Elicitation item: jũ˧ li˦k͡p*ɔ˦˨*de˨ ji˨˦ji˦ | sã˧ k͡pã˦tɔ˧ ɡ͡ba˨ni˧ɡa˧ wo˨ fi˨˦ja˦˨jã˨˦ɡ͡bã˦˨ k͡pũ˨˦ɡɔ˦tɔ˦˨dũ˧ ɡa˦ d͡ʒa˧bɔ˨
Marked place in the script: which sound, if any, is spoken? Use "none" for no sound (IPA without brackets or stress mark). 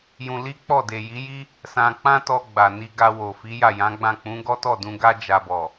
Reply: ɔ˦˨